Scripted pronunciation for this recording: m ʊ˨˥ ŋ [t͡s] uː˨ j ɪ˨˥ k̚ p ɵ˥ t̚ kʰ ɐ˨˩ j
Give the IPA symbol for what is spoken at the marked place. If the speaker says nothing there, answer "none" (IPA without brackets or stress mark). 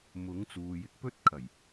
t͡s